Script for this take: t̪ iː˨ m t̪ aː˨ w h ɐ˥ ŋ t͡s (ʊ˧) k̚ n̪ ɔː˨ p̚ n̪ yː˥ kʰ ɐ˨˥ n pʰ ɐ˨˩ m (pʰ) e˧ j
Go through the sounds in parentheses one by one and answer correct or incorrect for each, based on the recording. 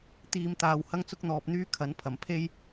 incorrect: ʊ˥, correct

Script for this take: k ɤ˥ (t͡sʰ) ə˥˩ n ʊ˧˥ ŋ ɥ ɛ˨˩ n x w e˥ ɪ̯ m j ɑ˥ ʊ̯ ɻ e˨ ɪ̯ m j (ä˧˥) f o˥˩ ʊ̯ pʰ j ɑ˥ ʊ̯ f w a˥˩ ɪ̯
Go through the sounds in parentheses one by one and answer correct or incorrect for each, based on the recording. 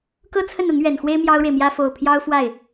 correct, incorrect: ä˥

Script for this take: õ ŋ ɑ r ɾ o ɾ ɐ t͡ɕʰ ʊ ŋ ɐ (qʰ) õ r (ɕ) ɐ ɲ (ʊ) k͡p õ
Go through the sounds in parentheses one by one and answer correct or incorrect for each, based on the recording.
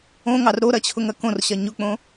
incorrect: k, correct, correct

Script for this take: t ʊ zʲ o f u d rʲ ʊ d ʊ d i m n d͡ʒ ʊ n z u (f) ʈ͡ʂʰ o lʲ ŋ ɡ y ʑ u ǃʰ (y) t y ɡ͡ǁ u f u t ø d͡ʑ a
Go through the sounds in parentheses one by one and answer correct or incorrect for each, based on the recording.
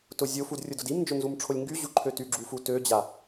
incorrect: m, incorrect: ø

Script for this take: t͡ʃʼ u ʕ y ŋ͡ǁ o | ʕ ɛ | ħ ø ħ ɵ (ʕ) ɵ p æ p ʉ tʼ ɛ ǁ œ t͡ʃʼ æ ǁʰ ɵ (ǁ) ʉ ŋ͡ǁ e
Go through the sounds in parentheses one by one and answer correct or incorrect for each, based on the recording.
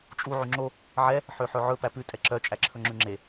correct, incorrect: ŋ͡ǁ

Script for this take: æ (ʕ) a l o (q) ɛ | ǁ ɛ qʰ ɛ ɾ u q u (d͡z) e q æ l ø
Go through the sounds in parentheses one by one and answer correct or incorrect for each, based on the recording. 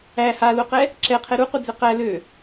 incorrect: h, correct, correct

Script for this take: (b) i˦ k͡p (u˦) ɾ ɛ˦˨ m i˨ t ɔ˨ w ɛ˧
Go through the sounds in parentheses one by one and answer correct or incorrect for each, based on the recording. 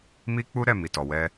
incorrect: m, correct

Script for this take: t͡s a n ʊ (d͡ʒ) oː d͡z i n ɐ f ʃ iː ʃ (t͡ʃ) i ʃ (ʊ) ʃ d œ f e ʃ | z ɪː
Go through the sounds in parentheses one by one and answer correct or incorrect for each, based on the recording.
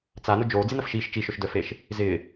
correct, correct, correct

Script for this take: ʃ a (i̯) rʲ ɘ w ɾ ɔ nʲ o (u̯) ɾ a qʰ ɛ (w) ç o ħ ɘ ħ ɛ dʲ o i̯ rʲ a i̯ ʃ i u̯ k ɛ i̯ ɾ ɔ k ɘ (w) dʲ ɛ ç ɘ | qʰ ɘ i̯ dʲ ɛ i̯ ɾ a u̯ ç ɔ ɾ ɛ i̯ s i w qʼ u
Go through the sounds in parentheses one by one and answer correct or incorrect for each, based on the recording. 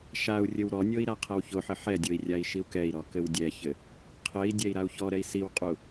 incorrect: u̯, incorrect: i̯, correct, correct

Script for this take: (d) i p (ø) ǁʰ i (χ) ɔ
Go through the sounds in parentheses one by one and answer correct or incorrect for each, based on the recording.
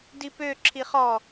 correct, correct, correct

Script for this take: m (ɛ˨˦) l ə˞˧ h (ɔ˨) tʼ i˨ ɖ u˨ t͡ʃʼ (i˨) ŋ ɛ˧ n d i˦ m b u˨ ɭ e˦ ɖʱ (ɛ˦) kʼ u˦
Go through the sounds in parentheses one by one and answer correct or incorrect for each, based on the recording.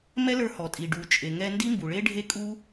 incorrect: ɛ˦, correct, incorrect: e˨, incorrect: e˦

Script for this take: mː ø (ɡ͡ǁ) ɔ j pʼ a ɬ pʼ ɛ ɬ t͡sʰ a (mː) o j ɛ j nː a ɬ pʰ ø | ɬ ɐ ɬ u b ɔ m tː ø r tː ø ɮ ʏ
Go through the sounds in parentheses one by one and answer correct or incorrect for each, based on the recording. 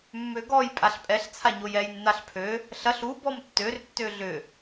incorrect: ɡ, incorrect: ɲ

